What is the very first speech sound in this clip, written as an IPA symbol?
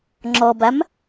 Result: ŋ͡ǁ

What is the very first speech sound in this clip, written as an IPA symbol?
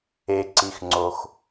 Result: e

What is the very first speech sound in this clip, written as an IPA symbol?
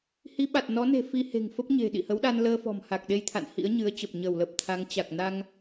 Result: h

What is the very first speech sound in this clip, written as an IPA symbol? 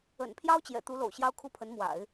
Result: ə̰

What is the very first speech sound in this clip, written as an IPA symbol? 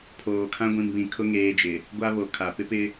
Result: pʰ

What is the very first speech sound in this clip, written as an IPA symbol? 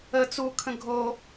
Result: ə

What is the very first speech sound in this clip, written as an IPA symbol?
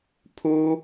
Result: pʰ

